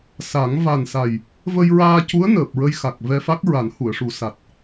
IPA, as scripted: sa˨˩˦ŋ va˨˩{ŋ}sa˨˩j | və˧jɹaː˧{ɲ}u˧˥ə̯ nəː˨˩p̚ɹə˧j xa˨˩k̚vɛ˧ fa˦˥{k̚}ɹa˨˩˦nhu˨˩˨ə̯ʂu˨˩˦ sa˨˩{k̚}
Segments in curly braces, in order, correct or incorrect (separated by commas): incorrect, incorrect, correct, incorrect